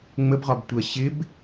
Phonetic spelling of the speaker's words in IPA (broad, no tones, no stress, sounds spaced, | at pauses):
ŋ͡m ə b ʁ ɒ b tʷ ɜ ɕ ɪ b